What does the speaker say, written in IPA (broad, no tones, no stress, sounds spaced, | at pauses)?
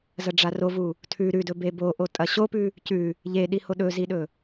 z ɐ ɖ͡ʐ a r o v u | tʰ ʉ ɾ ʉ d ɵ b e b o ʔ o tʼ ɐ ɕ o p ʉ | c ʉ | ʎ e ɗ i h o ɗ ɵ z i ɗ ɵ